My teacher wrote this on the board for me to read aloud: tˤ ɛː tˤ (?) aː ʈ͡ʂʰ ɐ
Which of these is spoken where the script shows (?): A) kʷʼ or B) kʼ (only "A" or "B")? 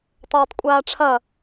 A